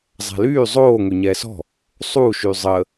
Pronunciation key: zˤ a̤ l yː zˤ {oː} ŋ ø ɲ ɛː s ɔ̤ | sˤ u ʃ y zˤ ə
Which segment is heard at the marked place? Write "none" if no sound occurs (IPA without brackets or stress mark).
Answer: oː